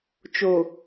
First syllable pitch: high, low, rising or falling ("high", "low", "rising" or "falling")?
low